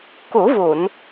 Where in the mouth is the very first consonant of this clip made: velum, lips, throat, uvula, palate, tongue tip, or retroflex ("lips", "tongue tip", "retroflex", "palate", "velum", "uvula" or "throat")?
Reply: velum